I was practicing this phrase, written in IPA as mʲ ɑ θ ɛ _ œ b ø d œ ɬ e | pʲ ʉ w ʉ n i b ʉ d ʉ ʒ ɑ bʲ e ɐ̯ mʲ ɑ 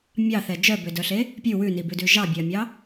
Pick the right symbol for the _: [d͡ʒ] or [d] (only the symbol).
d͡ʒ